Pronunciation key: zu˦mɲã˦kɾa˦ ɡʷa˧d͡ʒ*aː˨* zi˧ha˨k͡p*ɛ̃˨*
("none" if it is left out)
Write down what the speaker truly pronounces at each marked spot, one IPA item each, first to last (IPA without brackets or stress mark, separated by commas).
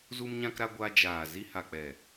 aː˨, ɛ˨